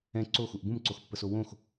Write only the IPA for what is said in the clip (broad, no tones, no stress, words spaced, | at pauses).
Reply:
ɛ̃ ǀoxuʔ bũmǀoxpːəso wõx